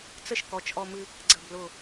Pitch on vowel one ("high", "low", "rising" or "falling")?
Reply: high